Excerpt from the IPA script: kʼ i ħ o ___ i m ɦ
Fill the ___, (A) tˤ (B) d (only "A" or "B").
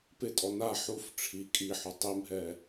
A